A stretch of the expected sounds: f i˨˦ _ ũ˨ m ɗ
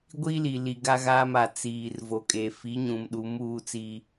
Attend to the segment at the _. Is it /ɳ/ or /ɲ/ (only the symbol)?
ɲ